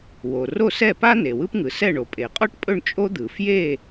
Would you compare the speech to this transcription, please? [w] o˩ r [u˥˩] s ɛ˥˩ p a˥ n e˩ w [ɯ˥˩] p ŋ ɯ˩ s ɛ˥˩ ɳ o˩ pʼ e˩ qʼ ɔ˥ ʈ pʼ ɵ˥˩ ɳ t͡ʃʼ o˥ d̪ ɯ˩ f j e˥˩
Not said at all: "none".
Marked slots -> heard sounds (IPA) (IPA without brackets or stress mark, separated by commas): w, o˥˩, ɯ˥